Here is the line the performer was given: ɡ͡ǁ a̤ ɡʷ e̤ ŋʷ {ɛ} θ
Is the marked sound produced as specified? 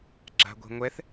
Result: yes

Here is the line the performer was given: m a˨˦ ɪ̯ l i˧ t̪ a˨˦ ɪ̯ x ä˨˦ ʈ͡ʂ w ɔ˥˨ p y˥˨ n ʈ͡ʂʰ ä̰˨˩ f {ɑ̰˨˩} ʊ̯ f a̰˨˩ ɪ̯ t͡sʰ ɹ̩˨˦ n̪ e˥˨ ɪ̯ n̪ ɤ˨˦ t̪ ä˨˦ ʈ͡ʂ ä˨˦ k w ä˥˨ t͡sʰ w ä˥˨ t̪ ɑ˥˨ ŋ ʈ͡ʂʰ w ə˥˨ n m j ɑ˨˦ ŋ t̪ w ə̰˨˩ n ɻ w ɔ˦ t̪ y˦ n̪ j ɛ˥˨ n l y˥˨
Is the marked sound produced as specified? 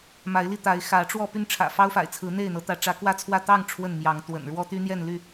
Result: no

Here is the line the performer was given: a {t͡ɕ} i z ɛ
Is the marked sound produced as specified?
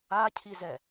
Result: no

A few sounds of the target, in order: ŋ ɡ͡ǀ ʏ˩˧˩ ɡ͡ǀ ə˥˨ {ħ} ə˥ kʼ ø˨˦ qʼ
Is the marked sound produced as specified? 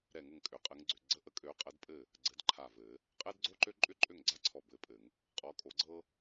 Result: no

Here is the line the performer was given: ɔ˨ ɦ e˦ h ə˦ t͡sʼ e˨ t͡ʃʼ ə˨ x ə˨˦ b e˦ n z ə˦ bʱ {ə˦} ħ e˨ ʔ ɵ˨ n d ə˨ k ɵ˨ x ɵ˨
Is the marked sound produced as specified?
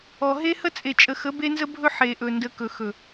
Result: no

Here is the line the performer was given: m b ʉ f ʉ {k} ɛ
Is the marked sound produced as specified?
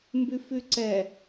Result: no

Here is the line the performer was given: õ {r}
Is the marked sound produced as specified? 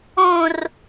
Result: yes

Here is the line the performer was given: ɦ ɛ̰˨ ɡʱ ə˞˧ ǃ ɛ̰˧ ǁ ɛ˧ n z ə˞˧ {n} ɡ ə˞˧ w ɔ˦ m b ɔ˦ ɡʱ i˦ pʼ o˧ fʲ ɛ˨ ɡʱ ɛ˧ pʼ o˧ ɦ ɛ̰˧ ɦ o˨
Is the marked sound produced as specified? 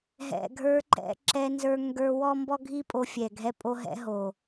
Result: no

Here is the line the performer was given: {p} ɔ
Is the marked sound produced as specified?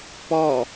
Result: yes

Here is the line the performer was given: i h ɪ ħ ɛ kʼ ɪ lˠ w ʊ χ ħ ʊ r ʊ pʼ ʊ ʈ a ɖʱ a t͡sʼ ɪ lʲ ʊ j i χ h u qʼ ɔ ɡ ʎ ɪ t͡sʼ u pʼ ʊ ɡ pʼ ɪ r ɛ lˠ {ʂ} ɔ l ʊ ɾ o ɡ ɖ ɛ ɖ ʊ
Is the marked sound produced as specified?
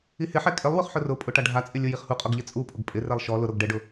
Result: no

